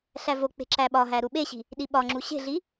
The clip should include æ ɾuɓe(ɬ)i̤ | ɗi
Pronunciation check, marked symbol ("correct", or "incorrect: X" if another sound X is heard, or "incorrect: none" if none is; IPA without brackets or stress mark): incorrect: ɕ